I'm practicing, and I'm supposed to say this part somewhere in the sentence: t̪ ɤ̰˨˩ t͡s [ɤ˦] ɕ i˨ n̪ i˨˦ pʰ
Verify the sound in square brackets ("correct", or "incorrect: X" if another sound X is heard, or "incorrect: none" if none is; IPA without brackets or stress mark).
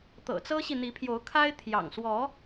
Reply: correct